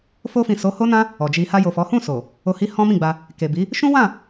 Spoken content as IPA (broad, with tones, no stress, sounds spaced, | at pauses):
f o˧ f ĩ˨ s o˨˦ h o˦ n ã˦ | ɔ˨ d͡ʒ i˧ h a˧ j o˨ f ɔ˨˦ h ũ˦˨ s o˨ | o˧ h i˦ h ɔ̃˦ m ĩ˦˨ ɡ͡b a˧ | k e˨ b i˨˦ | ʃ ũ˦ w ã˦˨